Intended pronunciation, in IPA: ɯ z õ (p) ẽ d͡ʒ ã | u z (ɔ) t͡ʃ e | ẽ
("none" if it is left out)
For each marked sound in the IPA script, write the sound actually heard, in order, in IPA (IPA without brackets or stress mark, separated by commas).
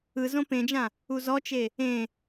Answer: p, ɔ